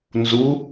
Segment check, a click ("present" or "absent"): absent